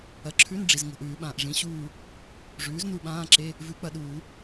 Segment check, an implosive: present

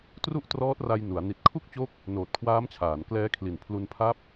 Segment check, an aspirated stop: present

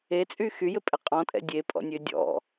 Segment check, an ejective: present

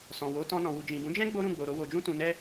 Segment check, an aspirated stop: absent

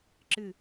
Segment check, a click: present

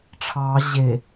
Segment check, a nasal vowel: absent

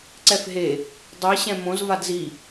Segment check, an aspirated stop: absent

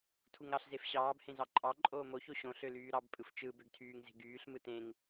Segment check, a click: present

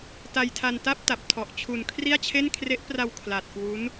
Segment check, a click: absent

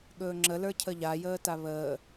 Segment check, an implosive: present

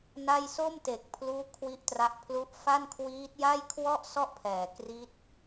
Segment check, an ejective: absent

